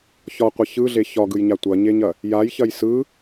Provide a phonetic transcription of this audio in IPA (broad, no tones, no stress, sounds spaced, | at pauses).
ç ɒ qʷ ɐ ç ɯ ɮ e ç ɒ ɡ ɯ j ɲ a tʷ ɐ ɲ e ɲ ɐ | j a j ç ɐ j s ɯ